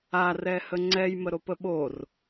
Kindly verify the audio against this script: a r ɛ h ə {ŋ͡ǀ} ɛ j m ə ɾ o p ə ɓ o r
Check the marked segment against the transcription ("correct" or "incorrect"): correct